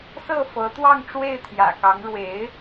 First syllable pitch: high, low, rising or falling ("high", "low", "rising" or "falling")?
falling